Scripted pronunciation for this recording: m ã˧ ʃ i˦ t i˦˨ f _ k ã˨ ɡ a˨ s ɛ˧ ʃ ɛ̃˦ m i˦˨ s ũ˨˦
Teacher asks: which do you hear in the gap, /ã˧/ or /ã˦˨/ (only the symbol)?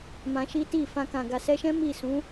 ã˧